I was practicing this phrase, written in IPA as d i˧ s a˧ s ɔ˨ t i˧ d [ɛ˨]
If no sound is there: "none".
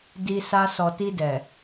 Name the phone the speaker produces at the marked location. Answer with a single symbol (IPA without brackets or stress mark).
ɛ˨